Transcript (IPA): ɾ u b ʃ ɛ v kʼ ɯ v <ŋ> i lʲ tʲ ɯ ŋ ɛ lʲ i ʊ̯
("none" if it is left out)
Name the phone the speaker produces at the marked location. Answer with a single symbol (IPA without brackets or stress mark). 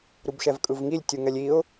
ŋ